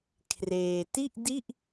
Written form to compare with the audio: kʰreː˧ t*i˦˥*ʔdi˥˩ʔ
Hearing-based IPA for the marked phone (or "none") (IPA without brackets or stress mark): i˥˩